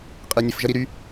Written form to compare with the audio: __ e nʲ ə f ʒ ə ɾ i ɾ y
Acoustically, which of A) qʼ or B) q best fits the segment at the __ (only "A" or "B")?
A